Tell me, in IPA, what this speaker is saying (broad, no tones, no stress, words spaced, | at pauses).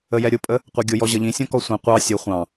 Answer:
əjɛɾʲʊpʼə | qʷɛɡʲʊjɔ ʑʌʎĩsʲɔ̃ kɔsʷĩ qʷɑ sʲʊ χʷɑ̃